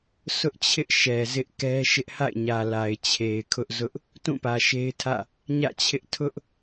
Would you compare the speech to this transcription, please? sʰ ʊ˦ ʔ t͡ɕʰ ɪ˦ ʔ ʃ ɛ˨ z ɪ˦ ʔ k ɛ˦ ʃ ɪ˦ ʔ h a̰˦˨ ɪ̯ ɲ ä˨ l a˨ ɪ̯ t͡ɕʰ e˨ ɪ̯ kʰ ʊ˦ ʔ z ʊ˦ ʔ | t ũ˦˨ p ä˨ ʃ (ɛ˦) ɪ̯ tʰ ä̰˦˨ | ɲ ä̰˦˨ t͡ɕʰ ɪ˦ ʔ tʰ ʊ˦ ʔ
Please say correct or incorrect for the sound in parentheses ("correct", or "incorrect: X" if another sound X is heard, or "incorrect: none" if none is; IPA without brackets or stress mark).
incorrect: e˦